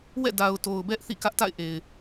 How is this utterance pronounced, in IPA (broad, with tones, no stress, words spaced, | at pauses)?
wɛ̰˦˨ da˨ʊ̯to˨ʊ̯ bɛ˦ʔ θḭ˦˨kä˦ʔta̰˦˨ɪ̯ ʔe˨ɪ̯